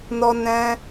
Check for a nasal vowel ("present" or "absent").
present